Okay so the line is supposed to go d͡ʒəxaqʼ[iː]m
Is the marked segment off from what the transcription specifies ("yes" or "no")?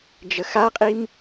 yes